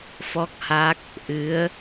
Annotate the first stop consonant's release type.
plain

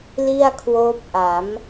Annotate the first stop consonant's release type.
aspirated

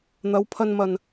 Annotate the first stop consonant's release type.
aspirated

